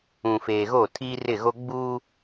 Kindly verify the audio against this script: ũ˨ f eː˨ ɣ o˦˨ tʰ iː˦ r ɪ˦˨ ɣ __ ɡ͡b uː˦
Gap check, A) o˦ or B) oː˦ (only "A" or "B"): A